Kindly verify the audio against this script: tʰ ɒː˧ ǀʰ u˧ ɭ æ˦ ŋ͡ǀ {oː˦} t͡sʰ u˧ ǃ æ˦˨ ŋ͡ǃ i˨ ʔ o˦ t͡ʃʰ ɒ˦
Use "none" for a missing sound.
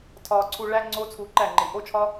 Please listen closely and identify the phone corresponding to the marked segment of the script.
oː˦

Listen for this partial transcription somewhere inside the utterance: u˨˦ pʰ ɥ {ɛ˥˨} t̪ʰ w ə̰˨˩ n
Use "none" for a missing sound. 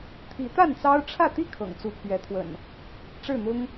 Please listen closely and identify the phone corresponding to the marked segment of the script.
ɛ˨˦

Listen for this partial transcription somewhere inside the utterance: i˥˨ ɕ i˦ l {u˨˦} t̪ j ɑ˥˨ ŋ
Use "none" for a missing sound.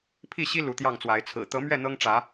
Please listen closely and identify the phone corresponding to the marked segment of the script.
u˨˦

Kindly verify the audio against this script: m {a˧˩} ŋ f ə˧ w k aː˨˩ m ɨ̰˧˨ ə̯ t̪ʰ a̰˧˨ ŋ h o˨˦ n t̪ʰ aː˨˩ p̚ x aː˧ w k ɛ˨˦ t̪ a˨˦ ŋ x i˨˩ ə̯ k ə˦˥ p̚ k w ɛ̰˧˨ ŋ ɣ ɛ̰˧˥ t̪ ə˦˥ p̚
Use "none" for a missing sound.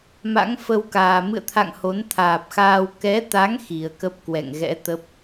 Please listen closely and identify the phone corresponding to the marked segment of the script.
a̰˧˥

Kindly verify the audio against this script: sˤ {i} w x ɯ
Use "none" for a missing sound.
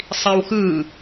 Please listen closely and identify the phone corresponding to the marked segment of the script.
i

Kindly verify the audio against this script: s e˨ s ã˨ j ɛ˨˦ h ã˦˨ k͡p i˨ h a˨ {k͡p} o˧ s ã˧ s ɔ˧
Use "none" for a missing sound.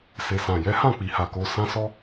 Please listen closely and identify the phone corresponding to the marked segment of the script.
k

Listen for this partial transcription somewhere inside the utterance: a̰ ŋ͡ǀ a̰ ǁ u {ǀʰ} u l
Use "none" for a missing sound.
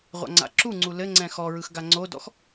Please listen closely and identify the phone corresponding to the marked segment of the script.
ŋ͡ǀ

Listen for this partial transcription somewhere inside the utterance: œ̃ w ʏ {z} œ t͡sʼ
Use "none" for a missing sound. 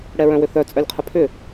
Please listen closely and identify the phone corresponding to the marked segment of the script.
θ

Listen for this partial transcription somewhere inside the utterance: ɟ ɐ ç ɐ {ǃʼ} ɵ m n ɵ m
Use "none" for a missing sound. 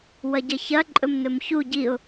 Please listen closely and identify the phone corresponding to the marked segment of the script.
ǃʼ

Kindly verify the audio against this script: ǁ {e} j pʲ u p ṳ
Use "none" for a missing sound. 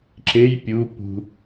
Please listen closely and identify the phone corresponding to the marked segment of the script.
e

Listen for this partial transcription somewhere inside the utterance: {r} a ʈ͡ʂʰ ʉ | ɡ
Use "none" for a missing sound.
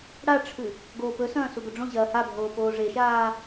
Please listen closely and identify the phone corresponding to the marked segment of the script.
ɽ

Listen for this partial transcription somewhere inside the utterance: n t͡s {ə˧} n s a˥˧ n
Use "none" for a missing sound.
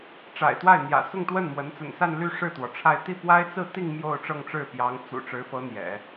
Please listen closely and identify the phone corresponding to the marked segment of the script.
ə̰˨˩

